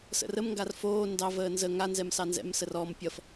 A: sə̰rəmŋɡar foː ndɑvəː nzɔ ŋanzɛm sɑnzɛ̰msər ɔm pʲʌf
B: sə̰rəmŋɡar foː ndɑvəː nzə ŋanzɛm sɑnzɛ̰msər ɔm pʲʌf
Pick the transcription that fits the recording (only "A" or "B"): B